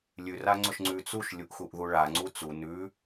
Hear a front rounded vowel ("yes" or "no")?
no